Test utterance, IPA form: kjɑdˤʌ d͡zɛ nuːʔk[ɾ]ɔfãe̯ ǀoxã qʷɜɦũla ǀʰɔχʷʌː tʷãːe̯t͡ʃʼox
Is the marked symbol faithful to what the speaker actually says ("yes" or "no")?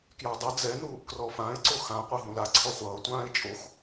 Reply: no